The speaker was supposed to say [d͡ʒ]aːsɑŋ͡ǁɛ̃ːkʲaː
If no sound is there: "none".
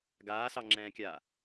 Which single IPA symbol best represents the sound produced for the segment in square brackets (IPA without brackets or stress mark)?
ɡ